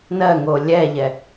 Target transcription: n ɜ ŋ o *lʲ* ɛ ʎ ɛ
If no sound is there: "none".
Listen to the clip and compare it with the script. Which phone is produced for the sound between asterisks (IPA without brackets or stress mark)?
lʲ